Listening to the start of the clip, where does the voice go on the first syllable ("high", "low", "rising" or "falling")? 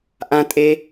high